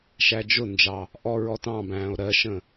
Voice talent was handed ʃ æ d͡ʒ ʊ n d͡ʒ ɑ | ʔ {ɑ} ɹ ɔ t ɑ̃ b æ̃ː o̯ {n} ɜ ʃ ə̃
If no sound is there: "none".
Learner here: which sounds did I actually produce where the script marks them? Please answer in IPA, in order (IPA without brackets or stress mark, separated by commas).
ɔ, ɾ